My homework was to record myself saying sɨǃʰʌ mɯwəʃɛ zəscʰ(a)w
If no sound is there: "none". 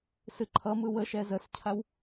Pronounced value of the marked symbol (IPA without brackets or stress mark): a